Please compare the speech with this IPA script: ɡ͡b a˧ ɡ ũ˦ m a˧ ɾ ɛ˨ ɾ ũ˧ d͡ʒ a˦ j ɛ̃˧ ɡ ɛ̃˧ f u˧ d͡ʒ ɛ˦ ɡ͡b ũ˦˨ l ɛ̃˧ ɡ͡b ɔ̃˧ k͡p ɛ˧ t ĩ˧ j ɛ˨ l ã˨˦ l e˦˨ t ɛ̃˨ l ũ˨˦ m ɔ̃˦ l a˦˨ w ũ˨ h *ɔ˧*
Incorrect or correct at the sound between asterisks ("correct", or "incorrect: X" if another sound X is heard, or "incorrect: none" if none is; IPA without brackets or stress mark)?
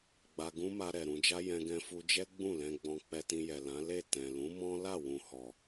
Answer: incorrect: ɔ˨